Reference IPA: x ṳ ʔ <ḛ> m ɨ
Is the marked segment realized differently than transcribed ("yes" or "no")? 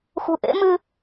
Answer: no